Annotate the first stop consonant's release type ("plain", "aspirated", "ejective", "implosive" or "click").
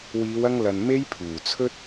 aspirated